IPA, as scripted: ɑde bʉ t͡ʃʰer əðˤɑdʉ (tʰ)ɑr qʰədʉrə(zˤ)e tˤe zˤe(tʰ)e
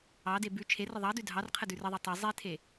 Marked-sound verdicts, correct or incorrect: incorrect: dʱ, incorrect: ðˤ, correct

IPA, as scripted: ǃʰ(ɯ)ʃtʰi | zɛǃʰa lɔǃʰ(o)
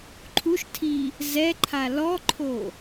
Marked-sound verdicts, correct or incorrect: incorrect: u, correct

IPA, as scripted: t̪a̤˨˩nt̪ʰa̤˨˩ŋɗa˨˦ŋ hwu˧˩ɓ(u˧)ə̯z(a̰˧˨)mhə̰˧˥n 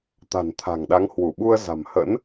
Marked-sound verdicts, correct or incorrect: correct, incorrect: a̤˨˩

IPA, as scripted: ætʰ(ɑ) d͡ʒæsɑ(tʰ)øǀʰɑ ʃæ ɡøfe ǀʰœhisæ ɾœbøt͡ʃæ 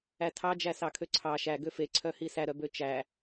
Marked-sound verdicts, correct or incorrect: correct, incorrect: kʰ

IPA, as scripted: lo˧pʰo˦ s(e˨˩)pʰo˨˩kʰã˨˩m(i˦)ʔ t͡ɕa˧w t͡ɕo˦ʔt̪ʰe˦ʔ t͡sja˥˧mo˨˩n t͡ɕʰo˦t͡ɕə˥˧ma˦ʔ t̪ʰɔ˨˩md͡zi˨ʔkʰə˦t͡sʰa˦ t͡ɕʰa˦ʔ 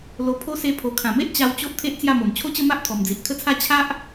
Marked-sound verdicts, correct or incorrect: incorrect: e˧, incorrect: e˦

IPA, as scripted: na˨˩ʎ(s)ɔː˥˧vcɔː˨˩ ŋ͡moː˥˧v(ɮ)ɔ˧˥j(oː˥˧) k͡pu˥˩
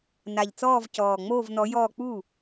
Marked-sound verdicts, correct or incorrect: incorrect: t͡s, incorrect: n, incorrect: ɔː˥˧

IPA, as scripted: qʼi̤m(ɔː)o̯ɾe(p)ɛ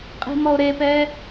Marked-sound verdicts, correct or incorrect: incorrect: ɔ, correct

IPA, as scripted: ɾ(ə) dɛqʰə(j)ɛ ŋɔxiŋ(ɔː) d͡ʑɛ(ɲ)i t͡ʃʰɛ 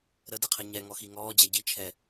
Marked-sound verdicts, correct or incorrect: correct, incorrect: ɲ, correct, incorrect: ɟ

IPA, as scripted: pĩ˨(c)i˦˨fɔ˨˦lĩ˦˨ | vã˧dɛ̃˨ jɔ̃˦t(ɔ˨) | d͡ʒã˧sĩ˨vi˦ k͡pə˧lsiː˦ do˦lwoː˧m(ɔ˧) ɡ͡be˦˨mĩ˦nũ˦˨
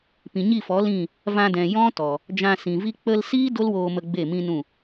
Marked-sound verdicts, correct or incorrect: incorrect: ɲ, correct, incorrect: ə˧

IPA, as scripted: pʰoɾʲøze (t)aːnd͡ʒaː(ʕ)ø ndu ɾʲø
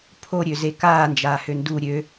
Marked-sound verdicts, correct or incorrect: incorrect: k, incorrect: h

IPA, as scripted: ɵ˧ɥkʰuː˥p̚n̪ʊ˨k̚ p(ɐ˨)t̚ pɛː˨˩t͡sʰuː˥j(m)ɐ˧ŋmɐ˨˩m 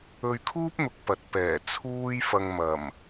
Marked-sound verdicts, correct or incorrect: correct, incorrect: f

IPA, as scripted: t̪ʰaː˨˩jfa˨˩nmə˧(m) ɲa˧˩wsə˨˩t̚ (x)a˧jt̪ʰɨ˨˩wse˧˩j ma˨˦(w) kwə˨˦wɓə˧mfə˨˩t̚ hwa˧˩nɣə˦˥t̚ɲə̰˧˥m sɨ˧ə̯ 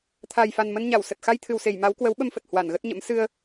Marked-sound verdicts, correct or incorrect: incorrect: n, correct, correct

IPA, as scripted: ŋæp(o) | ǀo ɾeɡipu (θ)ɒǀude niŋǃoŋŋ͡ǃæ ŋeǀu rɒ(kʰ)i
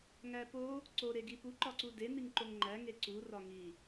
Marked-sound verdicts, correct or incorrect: correct, incorrect: ǃ, incorrect: ŋ

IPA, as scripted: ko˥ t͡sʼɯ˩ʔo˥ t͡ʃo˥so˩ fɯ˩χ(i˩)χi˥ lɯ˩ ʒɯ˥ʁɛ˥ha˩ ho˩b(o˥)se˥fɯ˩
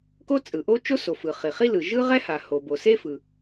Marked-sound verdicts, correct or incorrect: correct, incorrect: o˩

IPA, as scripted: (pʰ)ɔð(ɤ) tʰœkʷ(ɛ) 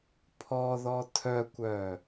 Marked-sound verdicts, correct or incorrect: correct, incorrect: ɔ, incorrect: œ

